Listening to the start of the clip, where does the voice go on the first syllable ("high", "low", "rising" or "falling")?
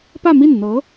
falling